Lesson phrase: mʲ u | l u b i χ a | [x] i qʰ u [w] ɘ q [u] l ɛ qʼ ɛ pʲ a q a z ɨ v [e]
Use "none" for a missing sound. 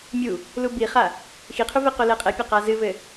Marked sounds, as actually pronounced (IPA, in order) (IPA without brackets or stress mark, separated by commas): x, v, o, ɘ